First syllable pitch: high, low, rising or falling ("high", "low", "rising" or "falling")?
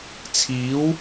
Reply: rising